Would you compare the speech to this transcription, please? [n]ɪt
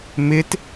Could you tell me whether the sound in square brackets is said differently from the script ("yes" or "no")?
yes